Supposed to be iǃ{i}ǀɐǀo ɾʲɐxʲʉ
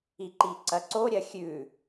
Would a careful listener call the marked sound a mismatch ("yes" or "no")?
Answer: no